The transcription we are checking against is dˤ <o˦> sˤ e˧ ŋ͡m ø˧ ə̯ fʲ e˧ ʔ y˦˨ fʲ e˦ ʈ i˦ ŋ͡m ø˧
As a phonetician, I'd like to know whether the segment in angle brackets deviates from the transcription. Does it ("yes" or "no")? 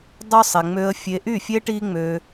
no